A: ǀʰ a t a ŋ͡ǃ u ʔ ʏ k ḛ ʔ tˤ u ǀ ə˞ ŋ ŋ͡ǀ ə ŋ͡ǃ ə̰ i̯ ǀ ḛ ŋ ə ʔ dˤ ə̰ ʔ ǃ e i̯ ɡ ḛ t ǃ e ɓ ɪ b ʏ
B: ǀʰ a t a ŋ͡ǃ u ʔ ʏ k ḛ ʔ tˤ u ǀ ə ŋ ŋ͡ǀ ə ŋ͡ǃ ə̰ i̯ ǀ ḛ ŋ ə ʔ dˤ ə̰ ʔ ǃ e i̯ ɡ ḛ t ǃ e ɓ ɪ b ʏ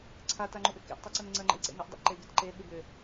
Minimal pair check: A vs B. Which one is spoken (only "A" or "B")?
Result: B